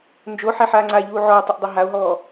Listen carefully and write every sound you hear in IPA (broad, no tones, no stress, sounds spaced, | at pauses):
n d͡ʒ o ħ ɛ ħ aː ŋ͡ǀ a ʎ uː ʕ ɔː tˤ o ʔ dˤ ɛ ɦ a o̯ ɦ ɔː